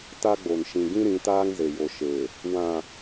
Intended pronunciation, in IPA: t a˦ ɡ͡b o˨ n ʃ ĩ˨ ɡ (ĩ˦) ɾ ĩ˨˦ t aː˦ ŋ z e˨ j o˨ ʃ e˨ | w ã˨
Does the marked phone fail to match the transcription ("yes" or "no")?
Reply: no